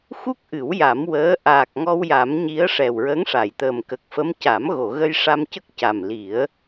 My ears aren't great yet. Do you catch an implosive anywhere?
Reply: no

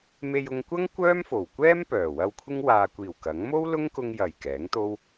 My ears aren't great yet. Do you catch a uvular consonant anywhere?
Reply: no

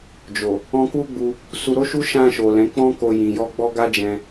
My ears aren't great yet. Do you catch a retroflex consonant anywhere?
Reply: no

